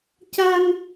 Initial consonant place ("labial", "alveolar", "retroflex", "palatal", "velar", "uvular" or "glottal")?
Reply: palatal